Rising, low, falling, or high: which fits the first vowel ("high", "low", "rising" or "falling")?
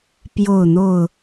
falling